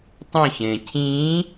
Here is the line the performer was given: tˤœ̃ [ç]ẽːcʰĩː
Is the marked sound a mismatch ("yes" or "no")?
no